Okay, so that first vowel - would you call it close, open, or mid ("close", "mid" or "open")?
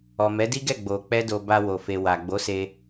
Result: mid